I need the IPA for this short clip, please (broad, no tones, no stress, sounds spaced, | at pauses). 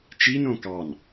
t͡ʃ i n õ k ɑ n